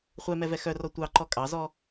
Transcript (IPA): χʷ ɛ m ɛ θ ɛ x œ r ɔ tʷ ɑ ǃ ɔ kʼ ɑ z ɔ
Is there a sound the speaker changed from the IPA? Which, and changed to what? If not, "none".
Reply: θ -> v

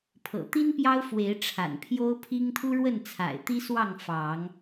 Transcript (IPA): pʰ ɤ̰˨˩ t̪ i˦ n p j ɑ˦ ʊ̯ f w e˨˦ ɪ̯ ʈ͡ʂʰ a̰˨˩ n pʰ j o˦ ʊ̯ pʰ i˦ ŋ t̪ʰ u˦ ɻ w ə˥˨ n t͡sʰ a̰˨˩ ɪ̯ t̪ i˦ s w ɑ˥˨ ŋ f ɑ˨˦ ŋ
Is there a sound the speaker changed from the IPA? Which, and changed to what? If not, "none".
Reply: none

